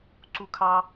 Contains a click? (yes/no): yes